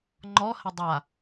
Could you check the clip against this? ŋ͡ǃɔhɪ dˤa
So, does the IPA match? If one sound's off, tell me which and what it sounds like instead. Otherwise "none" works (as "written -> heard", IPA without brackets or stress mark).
none